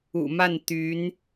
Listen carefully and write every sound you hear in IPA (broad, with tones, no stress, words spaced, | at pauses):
ṵ˨˩ma˥˩nt̪y˧˥n